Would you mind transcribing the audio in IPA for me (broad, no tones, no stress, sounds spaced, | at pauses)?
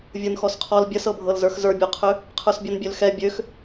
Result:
vʲ ə˞ n x ɔ s qʰ ɔ l bʲ ə s ɤ bʱ ɤ l z ə˞ x z ə˞ bʲ ɔ qʰ ø | qʰ ə˞ s bʲ ɔ n bʲ ø l x ɛ bʲ ø x